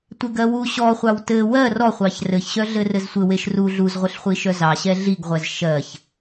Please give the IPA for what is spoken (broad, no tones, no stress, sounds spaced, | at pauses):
tʷ e ɡ ɜ w u ɕ ɔ χʷ ɑ w t ɘ w ɜ r ɔ χʷ ɑ ç r ɘ ç ɕ œ ɮ ɘ r ɘ z sʷ ɘ w e ʃ r u ɮ u z ʁʷ ɘ ɬ χʷ i ʃ œ z ɑ ɕ ɛ ɮ i ɡ ʁʷ ɛ z ʃ ɜ ç